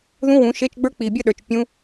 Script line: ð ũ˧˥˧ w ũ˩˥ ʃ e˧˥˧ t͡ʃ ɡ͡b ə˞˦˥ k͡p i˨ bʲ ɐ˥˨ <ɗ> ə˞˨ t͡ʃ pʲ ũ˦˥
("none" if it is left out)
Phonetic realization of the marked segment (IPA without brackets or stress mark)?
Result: ɗ